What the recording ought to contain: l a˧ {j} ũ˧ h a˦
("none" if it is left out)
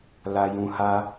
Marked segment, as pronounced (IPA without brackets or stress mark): j